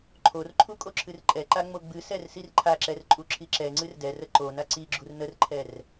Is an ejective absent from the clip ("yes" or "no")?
no